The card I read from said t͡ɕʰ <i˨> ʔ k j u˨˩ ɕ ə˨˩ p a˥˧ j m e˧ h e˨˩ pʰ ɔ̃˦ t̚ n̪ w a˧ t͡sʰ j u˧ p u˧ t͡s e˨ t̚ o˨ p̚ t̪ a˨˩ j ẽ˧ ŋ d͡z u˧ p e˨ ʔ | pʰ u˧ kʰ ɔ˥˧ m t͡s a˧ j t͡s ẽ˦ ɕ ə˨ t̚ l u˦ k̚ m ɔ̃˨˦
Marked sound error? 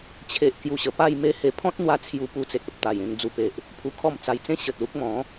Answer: yes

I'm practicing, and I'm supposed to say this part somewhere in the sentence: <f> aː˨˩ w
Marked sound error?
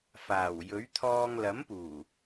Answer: no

